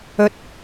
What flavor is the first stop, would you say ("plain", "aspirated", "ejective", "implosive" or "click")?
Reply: plain